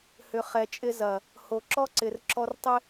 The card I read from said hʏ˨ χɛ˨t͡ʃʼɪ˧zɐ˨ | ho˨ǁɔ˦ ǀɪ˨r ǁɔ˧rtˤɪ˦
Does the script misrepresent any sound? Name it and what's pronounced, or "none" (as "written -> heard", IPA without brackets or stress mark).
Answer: none